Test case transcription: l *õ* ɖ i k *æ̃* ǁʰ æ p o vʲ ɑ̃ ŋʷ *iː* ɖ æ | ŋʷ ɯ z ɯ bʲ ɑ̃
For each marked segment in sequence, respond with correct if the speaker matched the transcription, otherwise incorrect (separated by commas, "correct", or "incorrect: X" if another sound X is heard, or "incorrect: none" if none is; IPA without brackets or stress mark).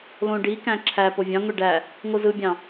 correct, correct, incorrect: i